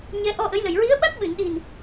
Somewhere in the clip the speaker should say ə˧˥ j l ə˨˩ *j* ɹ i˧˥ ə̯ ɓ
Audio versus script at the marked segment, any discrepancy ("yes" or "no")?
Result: no